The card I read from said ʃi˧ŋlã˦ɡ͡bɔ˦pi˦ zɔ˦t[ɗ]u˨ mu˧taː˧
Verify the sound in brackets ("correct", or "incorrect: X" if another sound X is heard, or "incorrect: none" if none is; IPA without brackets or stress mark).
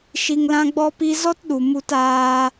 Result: correct